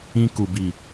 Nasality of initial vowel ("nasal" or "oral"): nasal